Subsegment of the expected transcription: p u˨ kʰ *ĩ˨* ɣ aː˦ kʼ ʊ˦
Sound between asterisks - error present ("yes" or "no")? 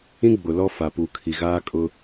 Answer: yes